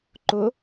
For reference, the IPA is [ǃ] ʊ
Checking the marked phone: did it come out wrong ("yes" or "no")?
no